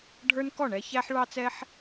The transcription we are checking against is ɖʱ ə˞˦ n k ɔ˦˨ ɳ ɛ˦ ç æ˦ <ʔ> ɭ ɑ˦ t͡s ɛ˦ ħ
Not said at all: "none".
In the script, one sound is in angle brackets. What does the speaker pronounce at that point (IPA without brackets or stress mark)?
ħ